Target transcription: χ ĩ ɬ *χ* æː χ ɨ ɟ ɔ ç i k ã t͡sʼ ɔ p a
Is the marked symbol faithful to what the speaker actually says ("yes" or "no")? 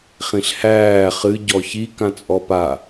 no